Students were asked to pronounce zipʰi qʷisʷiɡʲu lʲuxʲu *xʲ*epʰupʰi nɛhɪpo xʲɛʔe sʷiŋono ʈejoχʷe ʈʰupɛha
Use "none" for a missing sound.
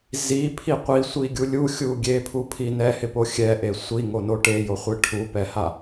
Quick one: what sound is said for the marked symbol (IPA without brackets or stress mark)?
ɡʲ